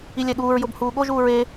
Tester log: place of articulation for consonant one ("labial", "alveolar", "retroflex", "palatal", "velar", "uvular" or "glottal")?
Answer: alveolar